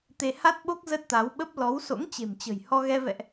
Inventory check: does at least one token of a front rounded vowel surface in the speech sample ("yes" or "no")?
no